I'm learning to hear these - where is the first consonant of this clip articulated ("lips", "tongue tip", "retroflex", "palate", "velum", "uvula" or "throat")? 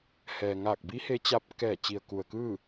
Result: throat